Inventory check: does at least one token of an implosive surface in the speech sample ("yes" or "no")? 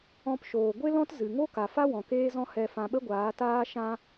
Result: yes